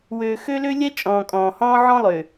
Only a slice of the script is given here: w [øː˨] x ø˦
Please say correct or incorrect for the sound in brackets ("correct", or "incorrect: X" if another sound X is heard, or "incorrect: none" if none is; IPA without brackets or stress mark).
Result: correct